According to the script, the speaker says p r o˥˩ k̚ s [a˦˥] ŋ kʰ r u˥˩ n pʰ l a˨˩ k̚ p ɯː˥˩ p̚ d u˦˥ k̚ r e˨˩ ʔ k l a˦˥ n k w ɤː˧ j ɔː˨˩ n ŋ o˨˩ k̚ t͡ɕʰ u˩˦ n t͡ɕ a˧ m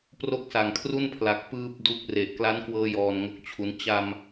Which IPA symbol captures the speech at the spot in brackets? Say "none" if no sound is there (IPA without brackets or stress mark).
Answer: a˨˩